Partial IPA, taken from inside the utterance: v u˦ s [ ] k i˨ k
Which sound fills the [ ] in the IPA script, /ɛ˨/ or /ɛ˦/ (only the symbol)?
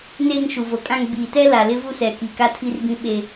ɛ˨